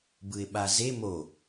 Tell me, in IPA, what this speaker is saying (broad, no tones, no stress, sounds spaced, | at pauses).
b ɯ ɪ̯ ɓ a z e m o